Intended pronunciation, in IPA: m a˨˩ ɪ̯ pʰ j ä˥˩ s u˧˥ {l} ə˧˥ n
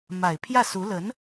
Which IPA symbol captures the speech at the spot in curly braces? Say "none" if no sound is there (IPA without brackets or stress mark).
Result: l